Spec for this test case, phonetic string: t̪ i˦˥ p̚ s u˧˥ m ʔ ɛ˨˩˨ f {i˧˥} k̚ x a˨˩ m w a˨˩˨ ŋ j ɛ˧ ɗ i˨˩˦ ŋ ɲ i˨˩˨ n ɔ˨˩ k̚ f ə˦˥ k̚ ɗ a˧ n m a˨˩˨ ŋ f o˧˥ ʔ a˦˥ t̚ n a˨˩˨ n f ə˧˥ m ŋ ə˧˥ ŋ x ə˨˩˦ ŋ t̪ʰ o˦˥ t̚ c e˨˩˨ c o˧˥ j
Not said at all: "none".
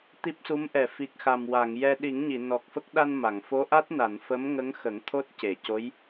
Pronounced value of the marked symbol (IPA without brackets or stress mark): i˨˩